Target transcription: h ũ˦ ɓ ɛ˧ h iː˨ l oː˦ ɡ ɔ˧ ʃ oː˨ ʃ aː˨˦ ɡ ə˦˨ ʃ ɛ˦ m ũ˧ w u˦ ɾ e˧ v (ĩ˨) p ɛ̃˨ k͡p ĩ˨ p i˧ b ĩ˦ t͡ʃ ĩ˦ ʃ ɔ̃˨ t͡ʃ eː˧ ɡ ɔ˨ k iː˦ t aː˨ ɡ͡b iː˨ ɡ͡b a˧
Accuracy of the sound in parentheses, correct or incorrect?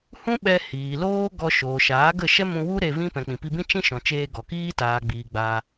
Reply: incorrect: ĩ˦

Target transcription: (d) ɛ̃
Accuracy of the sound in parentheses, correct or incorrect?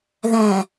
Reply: incorrect: ð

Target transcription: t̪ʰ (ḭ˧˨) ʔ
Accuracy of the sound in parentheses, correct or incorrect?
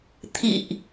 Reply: correct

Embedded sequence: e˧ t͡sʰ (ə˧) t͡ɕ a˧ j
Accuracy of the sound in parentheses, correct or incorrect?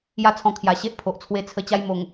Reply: correct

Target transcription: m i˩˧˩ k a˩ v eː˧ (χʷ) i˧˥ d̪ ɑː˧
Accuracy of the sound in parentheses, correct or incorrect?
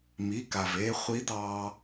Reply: correct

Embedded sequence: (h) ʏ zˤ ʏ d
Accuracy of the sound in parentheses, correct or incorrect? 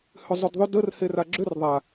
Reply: correct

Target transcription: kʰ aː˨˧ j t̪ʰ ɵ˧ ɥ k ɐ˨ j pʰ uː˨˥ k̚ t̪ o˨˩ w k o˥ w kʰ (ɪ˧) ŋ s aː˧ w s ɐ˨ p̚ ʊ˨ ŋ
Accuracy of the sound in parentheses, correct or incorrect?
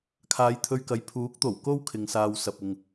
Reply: correct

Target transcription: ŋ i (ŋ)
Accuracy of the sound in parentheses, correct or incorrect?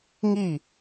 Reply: incorrect: none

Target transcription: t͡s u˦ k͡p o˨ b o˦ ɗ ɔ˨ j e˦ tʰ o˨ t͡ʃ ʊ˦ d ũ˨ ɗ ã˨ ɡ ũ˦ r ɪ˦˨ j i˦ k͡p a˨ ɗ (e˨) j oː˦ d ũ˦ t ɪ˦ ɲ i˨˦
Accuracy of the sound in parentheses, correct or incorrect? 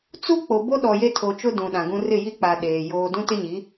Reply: incorrect: eː˨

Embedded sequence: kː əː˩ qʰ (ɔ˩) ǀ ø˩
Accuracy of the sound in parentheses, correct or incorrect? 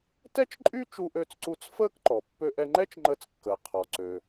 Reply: correct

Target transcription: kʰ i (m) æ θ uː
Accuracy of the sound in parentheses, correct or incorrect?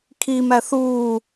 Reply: correct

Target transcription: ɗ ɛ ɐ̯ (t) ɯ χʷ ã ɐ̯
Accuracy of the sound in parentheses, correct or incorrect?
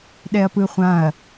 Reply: incorrect: p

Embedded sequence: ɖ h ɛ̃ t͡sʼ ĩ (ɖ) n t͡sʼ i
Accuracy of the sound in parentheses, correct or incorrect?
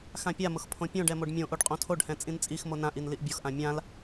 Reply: incorrect: none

